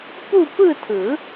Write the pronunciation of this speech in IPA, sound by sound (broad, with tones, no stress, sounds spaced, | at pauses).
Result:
p uː˥˧ p ɯ˥˧ tʰ ɯ˨˩˦